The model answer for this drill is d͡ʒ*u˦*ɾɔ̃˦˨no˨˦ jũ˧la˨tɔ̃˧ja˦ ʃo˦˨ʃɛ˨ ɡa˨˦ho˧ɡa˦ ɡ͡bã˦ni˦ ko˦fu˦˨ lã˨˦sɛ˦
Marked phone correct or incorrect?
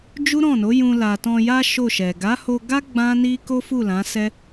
correct